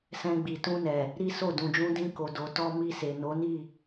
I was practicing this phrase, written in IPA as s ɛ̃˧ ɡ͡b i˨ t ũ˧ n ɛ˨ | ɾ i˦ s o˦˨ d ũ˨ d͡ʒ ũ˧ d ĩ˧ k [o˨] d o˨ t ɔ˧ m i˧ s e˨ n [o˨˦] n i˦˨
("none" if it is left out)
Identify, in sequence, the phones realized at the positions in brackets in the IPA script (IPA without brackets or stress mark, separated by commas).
o˨, o˨˦